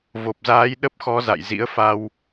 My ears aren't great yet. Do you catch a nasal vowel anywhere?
no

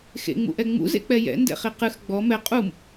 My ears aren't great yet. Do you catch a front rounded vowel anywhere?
no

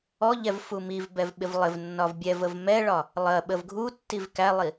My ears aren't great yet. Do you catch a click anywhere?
no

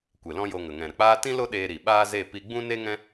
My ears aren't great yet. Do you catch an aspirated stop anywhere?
no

